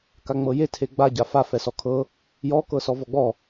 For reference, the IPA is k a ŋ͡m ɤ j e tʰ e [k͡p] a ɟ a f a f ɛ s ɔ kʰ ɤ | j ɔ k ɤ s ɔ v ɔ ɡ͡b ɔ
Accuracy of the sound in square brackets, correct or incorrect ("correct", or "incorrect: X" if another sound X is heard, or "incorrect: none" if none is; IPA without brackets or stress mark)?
incorrect: ɡ͡b